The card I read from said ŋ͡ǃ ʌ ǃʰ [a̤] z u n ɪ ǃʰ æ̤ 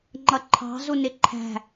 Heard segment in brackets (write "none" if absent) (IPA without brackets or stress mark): ɑ̤